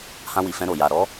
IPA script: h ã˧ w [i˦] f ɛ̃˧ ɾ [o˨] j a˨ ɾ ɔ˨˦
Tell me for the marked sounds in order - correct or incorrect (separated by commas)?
incorrect, correct